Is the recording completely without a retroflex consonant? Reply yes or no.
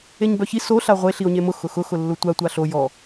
yes